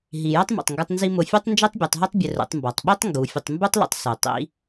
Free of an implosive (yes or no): no